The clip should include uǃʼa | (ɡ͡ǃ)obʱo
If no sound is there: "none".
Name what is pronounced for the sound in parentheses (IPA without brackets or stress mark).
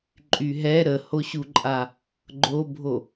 ɡ͡ǃ